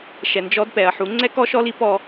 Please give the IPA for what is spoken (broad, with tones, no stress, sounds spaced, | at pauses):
ʃ ɛ˨ n d͡ʒ ɔ˧ d p ɛ˨ ɐ̯ ħ u˨˦ ŋ͡ǀ ɛ˦ k ɔ˦ ʃ ɔ˦ l i˦ p ɔ˦